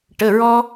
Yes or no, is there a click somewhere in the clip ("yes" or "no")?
no